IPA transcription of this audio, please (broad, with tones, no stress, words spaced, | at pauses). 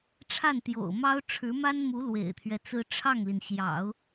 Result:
ʈ͡ʂʰa˥˩nt̪jo̰˨˩ʊ̯mɑ˥ʊ̯ ʈ͡ʂʰɻ̩˧˥ma˥nmu˧˥ lwḛ˨˩ɪ̯t̪ʰɥɛ˦t͡sɹ̩˥ ʈ͡ʂʰɑ˥˩ŋli˩nɕjɑ̰˨˩˦ʊ̯